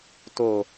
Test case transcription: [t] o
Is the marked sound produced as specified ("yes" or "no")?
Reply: yes